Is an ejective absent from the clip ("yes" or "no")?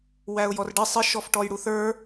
yes